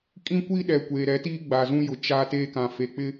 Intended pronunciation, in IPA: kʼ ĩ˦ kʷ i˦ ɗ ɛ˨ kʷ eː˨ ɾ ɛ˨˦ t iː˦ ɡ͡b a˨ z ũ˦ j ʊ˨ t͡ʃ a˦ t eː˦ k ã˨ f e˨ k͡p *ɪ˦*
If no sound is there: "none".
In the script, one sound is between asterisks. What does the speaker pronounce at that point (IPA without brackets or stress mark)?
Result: ɪ˦